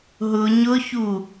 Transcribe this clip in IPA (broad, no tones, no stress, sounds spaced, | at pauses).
ɦ ʊ ɲ ʊ ç u